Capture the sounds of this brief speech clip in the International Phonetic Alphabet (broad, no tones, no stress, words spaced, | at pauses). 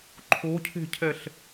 ǃʰocʰe̤cʰɛɬ